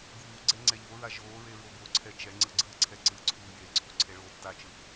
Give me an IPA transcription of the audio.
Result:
ɡ uː ɡ͡ǀ ɛ ŋ͡ǀ ɛ ʎ o ɹ a ʒ oː ɹ e ɹ o b o ǀʰ ɛ t͡ʃ ɛ ŋ͡ǀ ɯ ɡ͡ǀ ɯː ǀʰ ɛ ǀ ɯ ǀʰ uː j e ǀʰ u ǀʰ e ɭ oː tː a t͡ʃ ɯ

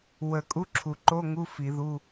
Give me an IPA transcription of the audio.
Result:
w ə˨˩˦ kʼ u˧˥˧ ǁʰ u˨˩˦ ǃ o˧˥˧ ŋ u˧˥˧ f i˨˩˦ ð u˧˥˧

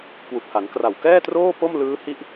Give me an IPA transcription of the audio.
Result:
k w u˨˩ k̚ h a˩˦ n k r a˨˩ w k ɛː˥˩ t r oː˥˩ p o˥˩ m l ɯː˦˥ h i˦˥ ʔ

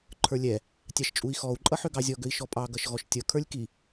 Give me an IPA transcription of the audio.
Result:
ǃʰ ə˞ lʲ ɛ | tʲ ɑ ʃ t͡ʃʼ u i̯ x ɔ u̯ ǃʼ ʌ ħ ø ɡ ɑ zʲ ɔ ɡ ø i̯ ʃ ɔ pʼ ɑ ɡ ʌ ʃ ɣ ɔ ʃ tʲ ʌ kʰ ə˞ lʲ k i

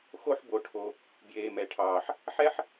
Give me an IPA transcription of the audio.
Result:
x o˥ ħ b o˧ ʈʰ o˧ | b j eː˧ m ɛ˧ ʈʰ ɑː˧ ħ | ħ ɛ˥ ħ

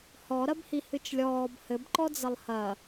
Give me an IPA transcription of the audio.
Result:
h ɔ ɾ ɐ b h i h ɨ t͡ʃ lʲ ɔː b h ɘ b ǃ ɔ d͡z ɐ lˠ h ɐ

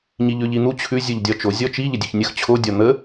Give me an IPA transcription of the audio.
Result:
ɲ i ʎ ʉ ʎ i n̪ u t͡ɕʰ ʉ zʲ u ʎ dʲ ɒ t͡ʃ o zʲ ɔ t͡ʃ i ʎ ə dʲ ʉ ç nʲ ə x t͡ɕʰ o dʲ ɒ n̪ ə

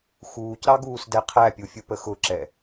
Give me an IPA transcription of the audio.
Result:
x uː c ɾ ɑ ɡ uː s d ɛ qʰ æ pʲ u fʲ u p ə x ʊ ǁ ɛ

